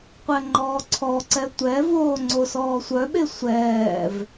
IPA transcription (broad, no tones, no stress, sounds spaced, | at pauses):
qʷ ɛ ŋ͡ǃ ɔː ǀʰ ɔ ǀ ɛ tʷ ɛ v oː ŋ͡ǀ o s ɔː sʷ œ ɓ e sʷ ɛː v